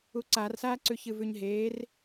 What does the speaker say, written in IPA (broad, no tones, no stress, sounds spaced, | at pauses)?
u ǀ a r s aː ǀ ʉ ç ɨ v ʉ ɲ ɦ eː r